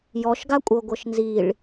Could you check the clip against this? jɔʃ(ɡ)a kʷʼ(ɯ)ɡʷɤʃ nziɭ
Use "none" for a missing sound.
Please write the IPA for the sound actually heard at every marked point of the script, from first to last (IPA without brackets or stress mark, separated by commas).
ɡ, ɤ